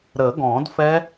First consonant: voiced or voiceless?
voiced